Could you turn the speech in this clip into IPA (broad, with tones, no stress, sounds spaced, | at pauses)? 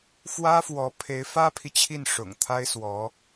f w ä˥ f w ɔ˧˥ pʰ e˧˥ ɪ̯ f ä˥ pʰ i˨ t͡ɕʰ i˥˩ n ʂ ʊ̰˨˩ ŋ t̪ʰ a˥ ɪ̯ s w ɔ˧˥